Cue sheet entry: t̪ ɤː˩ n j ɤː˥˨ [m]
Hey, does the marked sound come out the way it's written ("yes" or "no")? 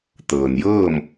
yes